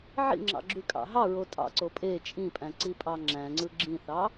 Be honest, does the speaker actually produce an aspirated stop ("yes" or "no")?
no